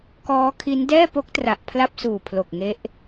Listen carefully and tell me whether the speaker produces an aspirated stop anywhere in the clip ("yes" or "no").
yes